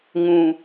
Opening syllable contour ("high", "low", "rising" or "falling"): low